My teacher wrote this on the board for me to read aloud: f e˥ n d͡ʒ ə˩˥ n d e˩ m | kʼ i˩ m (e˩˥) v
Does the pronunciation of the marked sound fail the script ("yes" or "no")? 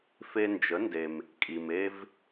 yes